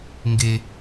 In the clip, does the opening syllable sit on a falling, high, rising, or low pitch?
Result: low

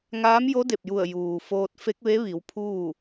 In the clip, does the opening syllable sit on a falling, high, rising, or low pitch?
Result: rising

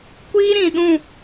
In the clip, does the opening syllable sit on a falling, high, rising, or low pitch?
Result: high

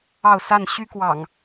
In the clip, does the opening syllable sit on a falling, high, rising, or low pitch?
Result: falling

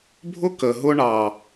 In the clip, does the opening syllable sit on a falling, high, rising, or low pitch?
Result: high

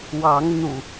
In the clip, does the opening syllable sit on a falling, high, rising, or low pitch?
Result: rising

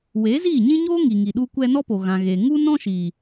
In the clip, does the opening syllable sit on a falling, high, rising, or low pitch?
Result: rising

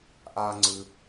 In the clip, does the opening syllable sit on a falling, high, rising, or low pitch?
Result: high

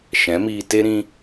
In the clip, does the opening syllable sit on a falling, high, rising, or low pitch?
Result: rising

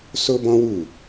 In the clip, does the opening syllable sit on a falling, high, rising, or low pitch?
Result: high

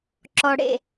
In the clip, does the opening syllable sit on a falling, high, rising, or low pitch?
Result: low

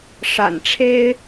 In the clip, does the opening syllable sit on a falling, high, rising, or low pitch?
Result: low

